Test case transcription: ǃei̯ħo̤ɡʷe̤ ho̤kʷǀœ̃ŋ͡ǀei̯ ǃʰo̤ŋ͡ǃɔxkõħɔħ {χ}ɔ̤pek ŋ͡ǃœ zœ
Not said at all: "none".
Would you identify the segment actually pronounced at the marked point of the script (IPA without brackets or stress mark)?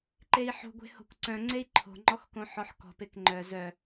k